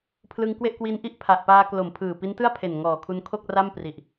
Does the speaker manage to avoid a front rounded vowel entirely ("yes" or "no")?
yes